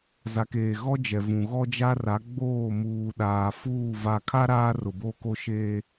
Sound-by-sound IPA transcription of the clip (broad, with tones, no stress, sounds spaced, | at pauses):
z a˨ k eː˨ ɣ ɔ˦ d͡ʒ ɛ˨ v ũ˨ ɣ ɔ˦ d͡ʒ a˦ r a˨˦ ɡ͡b oː˦˨ m uː˨ ɗ aː˨ f uː˦˨ v a˨ kʰ a˦ ɾ aː˦ r ʊ˨ b o˦˨ k o˦ ʃ eː˦